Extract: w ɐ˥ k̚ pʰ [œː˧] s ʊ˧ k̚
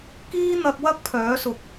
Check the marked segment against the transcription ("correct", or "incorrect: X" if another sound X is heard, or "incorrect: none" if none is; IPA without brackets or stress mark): incorrect: œː˨˥